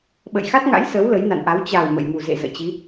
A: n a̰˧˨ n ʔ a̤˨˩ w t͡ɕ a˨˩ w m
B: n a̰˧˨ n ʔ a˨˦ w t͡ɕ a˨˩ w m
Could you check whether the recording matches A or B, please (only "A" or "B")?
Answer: B